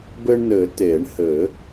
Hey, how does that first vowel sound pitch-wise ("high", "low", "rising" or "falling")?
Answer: high